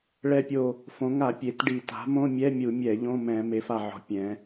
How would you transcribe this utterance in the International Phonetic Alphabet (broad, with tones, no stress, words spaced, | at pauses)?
ɭɛ˧˩pʲo˧˩ | fõ˩˧ŋa˧˩˧ pʲe˩˧tɖi˧˩˧ ta̤˩˥mõ˧˥˧ mʲɛ˧˥˧mʲu˧˩˧mʲɛ˧˩˧ ʎõ˧˥˧mɛ̃˧˩˧ me˩˧fa˧˩ʕɔ̤˩˥ pʲɛ̃˩˧